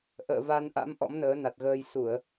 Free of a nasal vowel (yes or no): yes